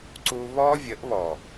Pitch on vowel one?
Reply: high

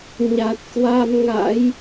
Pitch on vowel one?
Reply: low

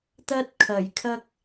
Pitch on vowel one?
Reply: high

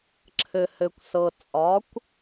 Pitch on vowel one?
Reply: low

